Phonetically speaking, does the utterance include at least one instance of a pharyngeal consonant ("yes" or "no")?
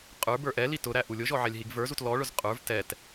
yes